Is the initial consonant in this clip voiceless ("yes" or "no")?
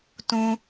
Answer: yes